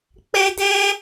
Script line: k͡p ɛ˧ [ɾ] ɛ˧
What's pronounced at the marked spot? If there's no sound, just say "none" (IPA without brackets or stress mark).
d